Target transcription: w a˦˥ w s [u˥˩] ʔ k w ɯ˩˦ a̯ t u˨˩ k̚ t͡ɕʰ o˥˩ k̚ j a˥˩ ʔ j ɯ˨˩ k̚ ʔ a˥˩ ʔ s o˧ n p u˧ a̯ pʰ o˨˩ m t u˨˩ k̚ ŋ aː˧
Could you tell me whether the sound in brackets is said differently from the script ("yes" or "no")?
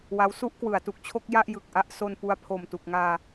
no